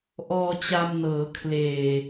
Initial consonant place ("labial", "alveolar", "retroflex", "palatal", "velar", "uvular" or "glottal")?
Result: glottal